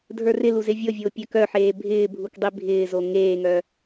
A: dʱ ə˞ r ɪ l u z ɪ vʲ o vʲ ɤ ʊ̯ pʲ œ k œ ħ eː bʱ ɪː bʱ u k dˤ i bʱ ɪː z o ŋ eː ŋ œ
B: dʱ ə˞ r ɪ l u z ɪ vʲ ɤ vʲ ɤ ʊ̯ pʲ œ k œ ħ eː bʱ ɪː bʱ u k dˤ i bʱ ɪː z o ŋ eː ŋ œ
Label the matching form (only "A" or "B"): B